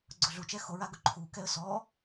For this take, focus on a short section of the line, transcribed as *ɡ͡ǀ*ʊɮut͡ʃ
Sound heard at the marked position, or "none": ɡ͡ǀ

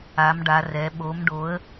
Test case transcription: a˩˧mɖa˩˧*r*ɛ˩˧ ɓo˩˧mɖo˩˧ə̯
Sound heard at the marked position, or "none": r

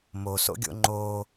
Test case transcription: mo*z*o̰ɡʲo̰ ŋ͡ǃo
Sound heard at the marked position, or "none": s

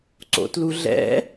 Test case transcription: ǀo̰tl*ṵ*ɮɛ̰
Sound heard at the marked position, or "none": u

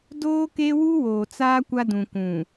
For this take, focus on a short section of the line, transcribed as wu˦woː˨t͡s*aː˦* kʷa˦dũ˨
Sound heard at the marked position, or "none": aː˦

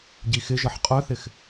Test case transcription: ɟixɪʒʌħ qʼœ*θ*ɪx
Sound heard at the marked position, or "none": θ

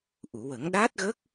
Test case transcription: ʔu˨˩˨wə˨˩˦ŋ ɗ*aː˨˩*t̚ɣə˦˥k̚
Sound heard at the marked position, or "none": aː˦˥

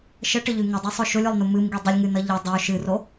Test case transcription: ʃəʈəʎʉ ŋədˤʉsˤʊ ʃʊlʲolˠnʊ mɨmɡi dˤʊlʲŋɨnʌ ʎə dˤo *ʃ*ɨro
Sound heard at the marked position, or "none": ʃ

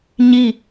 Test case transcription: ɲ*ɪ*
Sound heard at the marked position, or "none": i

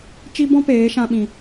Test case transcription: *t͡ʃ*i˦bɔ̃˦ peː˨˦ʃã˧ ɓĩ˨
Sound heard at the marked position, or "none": t͡ʃ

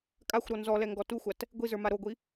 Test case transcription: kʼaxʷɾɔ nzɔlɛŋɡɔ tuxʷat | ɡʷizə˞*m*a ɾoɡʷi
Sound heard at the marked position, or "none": m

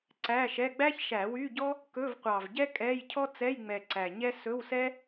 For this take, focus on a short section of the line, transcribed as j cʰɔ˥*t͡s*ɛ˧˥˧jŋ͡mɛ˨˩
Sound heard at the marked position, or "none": t͡s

